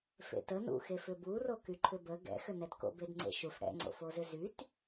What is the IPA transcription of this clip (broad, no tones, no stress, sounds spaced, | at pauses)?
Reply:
f ḛ t ə n ṵ x e f ʏ b u r o k y ǃʰ ʏ b ə ɡ ɛ̰ x ʏ n ɛ t k o̰ b e d ŋ͡ǀ ḛ ʃ u f ɽ ɛ̰ ŋ͡ǀ o̰ f o z ʏ z y t